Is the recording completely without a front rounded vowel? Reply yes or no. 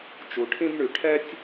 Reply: no